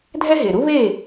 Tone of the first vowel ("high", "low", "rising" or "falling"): high